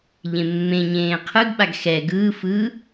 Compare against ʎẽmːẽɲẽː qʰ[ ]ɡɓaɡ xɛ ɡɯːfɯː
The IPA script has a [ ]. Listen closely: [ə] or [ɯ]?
ɯ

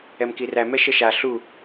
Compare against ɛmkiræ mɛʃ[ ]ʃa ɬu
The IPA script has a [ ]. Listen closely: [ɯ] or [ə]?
ə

